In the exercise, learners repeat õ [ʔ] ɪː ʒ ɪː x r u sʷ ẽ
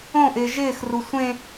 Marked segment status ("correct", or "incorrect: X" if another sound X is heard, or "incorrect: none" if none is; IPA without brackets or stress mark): correct